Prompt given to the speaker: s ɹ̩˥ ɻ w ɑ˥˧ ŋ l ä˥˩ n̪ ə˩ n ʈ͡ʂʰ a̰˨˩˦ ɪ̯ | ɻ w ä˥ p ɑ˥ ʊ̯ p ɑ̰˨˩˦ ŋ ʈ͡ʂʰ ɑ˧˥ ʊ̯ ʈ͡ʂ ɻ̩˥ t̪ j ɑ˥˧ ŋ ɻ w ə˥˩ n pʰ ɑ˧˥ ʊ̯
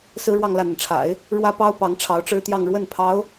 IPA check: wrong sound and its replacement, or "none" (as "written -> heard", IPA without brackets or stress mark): ɑ̰˨˩˦ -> ɑ˧˥